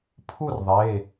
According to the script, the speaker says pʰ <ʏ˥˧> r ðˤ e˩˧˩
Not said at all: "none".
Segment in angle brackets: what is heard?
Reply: u˥˧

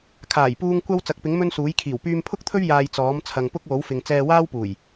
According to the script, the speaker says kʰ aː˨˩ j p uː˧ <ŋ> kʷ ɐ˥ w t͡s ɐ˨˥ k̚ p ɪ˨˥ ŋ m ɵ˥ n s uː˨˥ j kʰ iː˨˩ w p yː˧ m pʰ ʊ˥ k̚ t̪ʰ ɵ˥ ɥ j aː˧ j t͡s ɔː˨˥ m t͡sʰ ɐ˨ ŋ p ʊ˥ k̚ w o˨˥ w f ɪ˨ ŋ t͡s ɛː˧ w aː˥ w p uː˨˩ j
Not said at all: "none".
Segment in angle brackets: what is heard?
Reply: ŋ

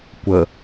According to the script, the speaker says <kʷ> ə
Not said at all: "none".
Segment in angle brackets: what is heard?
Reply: kʷ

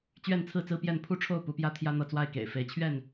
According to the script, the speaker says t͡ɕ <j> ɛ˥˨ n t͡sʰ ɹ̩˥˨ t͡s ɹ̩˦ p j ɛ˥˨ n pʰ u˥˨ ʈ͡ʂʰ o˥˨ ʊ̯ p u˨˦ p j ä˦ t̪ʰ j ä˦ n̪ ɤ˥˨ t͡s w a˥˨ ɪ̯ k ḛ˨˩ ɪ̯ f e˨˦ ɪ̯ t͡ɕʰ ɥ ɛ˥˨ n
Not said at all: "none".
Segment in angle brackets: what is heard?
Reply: ɥ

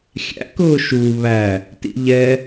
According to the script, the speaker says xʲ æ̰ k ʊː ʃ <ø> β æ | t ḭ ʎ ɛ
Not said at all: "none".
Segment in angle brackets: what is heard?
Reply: u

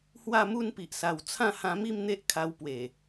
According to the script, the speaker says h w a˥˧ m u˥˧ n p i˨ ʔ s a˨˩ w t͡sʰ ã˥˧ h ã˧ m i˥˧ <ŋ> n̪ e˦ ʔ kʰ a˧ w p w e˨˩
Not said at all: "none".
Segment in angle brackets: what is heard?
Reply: m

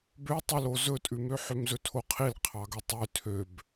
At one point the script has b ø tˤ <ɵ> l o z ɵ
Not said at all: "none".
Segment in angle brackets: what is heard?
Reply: ɵ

